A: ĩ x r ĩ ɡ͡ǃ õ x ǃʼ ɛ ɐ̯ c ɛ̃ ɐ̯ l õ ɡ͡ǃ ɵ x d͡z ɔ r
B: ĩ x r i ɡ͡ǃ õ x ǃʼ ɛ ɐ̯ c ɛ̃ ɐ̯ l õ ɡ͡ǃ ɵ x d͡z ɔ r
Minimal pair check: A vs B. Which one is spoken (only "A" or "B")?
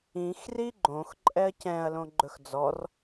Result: B